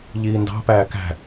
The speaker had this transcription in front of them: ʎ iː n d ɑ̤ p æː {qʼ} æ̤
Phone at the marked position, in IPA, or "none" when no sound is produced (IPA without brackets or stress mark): k